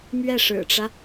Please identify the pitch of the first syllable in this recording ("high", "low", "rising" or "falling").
falling